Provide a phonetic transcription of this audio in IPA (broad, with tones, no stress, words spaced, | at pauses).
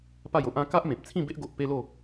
pa˥˧jo˦ʔã˦ ka˦ʔmẽ˨p̚t͡sʰĩ˥˧ be˦ʔɡo˨ʔ pe˦lo˥˧